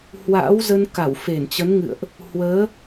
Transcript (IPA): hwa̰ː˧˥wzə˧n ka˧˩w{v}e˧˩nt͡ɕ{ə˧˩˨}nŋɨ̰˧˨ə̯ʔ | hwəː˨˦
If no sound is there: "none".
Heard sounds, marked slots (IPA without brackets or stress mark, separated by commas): f, ə˨˦